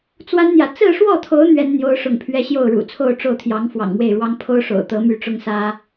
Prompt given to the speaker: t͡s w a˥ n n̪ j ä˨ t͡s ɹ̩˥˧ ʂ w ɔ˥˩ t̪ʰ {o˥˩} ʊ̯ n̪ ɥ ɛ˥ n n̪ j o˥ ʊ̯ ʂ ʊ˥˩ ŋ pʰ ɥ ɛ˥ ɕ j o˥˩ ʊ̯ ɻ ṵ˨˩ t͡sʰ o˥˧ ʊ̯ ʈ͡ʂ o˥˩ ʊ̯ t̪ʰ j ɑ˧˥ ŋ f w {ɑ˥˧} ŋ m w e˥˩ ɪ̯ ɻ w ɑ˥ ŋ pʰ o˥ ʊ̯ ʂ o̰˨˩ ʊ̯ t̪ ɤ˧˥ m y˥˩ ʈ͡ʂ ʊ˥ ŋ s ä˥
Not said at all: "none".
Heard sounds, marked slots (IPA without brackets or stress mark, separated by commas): o˧˥, ɑ̰˨˩